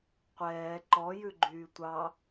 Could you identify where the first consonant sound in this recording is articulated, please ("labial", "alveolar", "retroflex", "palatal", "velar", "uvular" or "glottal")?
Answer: uvular